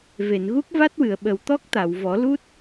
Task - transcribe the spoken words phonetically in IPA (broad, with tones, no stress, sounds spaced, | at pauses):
v e˨˩˨ n ɣ u˦˥ k̚ v a˦˥ t̚ w ɨ˨˩˨ ə̯ ɓ ə˨˩ w t̪ ɔ˦˥ k̚ t̪ a˨˩˨ w v ɔ˨˩˦ l u˦˥ t̚